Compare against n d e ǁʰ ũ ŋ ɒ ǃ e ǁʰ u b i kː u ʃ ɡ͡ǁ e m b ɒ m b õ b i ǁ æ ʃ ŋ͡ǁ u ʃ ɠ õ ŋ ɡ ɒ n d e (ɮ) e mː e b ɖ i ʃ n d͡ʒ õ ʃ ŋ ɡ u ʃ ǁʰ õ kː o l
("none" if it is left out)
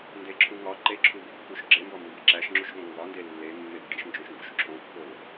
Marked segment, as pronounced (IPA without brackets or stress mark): lː